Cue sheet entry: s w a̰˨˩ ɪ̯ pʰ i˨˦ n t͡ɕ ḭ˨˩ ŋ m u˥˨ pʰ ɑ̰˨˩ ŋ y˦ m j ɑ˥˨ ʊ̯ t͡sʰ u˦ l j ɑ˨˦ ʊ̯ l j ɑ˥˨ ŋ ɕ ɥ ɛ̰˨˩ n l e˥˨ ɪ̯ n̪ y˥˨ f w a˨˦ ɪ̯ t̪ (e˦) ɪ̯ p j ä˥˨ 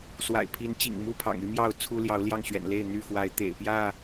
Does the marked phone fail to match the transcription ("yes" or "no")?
yes